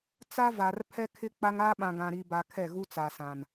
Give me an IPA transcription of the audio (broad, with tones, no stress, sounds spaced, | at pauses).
t͡s a˦ v a˨ r pʰ ɛ˦ kʰ ɪ˦ k͡p a˦ ŋ a˦ ɓ ã˨ ɡ ã˨ ɾ i˨ b a˨ kʰ ɛ˦˨ ɣ u˦ t͡s a˨ s ã˨ n